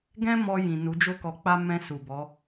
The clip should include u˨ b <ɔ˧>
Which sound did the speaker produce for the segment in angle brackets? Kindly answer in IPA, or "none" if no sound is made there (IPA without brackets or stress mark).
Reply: ɔ˨˦